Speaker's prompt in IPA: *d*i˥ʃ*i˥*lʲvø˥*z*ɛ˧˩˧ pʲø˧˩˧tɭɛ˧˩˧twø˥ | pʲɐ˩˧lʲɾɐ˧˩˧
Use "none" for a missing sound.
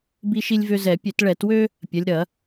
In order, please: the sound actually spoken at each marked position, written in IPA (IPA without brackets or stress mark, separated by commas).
b, i˥, z